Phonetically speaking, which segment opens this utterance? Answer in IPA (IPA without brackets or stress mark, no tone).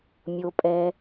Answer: mʲ